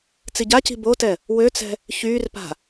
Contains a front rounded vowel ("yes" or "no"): yes